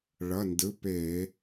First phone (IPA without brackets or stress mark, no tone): ɭ